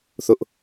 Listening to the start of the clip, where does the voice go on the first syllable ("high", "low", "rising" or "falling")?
high